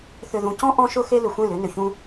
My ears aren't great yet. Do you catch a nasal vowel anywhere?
yes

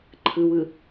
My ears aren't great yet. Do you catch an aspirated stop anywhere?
yes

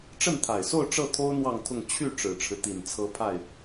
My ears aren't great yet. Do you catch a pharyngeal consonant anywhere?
no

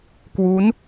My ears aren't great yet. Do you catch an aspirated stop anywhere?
no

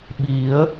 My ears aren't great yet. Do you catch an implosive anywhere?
yes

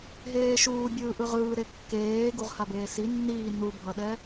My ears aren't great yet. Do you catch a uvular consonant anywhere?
yes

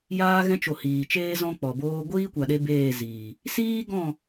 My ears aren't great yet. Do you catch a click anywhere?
no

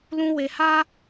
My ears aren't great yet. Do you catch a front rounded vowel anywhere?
no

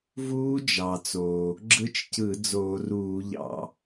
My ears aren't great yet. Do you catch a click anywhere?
yes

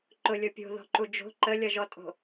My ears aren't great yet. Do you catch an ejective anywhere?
yes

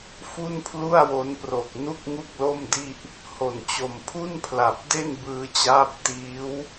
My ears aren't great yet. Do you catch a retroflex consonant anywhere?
no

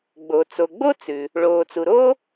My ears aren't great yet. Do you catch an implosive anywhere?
no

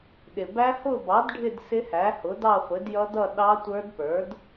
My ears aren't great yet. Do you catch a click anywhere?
no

